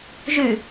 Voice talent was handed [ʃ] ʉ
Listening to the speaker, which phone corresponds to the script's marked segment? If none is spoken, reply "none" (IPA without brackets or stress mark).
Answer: ʒ